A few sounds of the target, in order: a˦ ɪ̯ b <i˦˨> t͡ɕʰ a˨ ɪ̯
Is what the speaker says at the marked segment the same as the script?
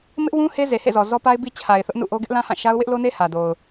no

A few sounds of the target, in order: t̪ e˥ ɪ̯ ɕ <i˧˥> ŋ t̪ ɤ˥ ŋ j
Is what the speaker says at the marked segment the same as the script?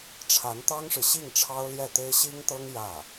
no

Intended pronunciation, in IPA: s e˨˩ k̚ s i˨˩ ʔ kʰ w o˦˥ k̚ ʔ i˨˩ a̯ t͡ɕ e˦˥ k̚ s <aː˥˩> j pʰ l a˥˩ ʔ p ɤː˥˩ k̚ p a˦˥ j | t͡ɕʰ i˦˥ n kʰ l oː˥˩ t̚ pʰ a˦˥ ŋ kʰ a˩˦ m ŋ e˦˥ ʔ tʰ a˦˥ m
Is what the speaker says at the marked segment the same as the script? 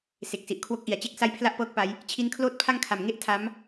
no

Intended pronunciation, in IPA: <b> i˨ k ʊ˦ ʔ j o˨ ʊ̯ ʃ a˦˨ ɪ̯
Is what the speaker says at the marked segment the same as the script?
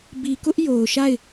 yes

